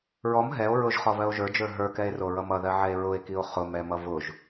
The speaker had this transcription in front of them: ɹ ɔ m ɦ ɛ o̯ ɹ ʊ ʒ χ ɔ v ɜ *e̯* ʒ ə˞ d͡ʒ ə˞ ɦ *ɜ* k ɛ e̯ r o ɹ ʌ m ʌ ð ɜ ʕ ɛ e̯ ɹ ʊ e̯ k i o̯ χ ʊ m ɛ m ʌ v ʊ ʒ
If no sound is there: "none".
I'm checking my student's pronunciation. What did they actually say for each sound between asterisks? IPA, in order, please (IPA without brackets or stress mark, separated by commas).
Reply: o̯, ə˞